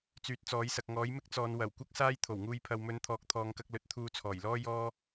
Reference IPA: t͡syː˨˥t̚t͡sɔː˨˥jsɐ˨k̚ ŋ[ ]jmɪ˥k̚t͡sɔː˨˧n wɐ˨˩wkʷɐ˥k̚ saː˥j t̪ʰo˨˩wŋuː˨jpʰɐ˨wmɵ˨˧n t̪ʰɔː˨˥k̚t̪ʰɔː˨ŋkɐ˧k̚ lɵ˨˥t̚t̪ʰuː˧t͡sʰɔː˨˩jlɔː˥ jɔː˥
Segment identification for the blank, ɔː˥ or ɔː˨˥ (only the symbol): ɔː˨˥